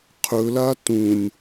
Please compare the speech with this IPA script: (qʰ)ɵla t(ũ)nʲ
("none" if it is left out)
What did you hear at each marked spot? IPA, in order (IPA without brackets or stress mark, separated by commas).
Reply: qʰ, ũ